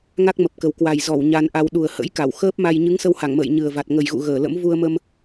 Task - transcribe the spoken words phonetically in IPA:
ŋa˦˥k̚mə˨˩p̚kə˨˩w kwa˨˩j zɔ˧˩w ɲa˧nʔa˧w ɗu˨˩ə̯hə̰˧˥jka˧˩w xəː˦˥p̚ma˧j ɲɨ˨˦ŋsə˧wha˧˩ŋmə̰ː˧˨j ɲɨ˨˩ə̯va˨˩t̚ ŋə˨˩jɣṵ˧˨ ɣəː˧˩lə̰˧˥m vu˧ə̯mə˧m

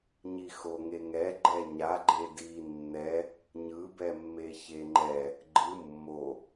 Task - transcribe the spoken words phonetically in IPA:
ɲixoŋeŋɛ ɡ͡ǃɛɲa ɡ͡ǃedi nːɛ | ɲɯbɛmːe çeŋ͡ǃɛ | ɡ͡ǃɯ mːo

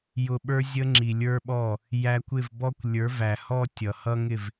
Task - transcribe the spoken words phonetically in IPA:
jʊ˨ɓə˞˧zʲə˧ ŋ͡ǁi˨lʲə˞˦ɓɔ˦˨ | jæ˧kʷ ɪ˦˨vbɔ˦kʷ lʲə˞˨˦væ˨hɔ˦ tʲʌ˨hʌ˦ŋɪ˦˨v

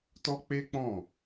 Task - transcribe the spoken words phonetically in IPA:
tɔ˦k͡pe˦k͡pɔ̃˦˨

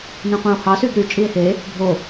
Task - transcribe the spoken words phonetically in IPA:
nẽqʷẽo̯hɑ syɡɾy t͡ʃʼie̯he | bʱo

